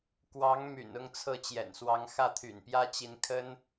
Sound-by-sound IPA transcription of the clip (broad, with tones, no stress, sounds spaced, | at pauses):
k w ɑ˧˥ ŋ m y̰˨˩ n ʊ˥˧ ŋ t͡sʰ ɤ˥˩ t͡ɕ j ɛ̰˨˩ n s w ɑ˧˥ ŋ x ä˥˩ t̪ʰ y̰˨˩ n p j ä˥ t͡ɕ i˧˥ n kʰ ə˥ n